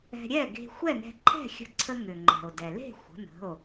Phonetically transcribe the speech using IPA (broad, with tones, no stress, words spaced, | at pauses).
ɛ̤˧ɾʲɛ˥˨ ɡe̤˧xʷɛ˥˨nɛ̤˧ ǃʰɛ̤˥˨xʲə̤˧ǀʰə˧ ŋʏ˩ŋ͡ǃɛ̤˩o̯ dɛ˩le̤˥˨ xʷə̤˩˧˩nə̤˩˧˩o̯